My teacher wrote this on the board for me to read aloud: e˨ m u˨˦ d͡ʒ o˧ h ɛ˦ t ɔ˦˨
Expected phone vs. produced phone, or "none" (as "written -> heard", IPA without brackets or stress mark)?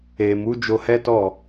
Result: none